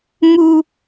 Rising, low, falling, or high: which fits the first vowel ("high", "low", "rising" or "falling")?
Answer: high